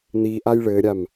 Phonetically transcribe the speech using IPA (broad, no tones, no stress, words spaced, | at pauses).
n̪iʔaj ɭɘɾʲam